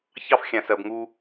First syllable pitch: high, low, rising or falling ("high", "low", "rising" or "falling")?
high